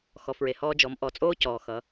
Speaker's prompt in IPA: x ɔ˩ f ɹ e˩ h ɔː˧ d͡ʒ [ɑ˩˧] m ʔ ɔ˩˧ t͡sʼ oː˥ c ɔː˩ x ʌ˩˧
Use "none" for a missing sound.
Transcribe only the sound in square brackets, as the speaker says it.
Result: ɔ˩˧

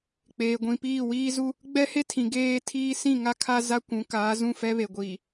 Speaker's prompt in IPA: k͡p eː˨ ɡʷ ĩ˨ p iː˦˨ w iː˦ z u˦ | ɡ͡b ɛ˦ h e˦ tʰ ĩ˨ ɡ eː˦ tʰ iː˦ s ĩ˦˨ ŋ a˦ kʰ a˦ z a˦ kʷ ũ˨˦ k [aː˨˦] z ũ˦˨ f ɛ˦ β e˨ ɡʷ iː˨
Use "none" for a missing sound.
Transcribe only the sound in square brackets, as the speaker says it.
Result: aː˨˦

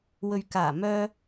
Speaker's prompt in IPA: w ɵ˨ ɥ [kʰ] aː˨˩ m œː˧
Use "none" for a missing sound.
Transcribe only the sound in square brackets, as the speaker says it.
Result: k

